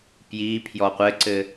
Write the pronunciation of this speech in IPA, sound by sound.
pji pʰjɔqʷɘǀɘ

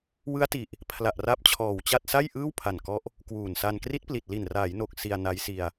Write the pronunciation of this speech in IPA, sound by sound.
wɯ˦˥a̯ti˨˩ʔ | pʰla˨˩ʔra˦˥p̚t͡ɕʰɔː˨˩wt͡ɕa˥˩t̚ sa˥˩jʔɯː˥˩w pʰa˨˩nkɔ˦˥ʔ | kwuː˨˩nsa˧n kri˦˥t̚pli˨˩t̚li˨˩n raː˩˦jno˨˩k̚ si˧a̯na˦˥j si˧a̯

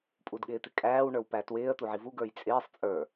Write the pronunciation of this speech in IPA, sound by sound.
pʼudɠɪːt̪ɪkʼæːw ɳə˞wpætwɪːə̯ t̪uʕivu ɡə˞jt͡sʼɪːsˤ t͡sʼə˞

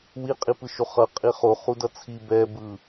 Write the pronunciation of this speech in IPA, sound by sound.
wiqʼipɯʃo χʌ qʼiχo χudʌt͡sʰi bɛbɯ

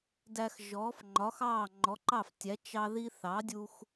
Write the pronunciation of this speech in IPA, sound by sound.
dæ˧x ʒɔː˩˥fŋ͡ǃɒ˩˥xɑː˥˩ ŋ͡ǃɔ˩˥ǃɑ˥˩ftʲæ˩˥ t͡ʃɑ˥ði˥ θɑ˩˥dʲu˧x

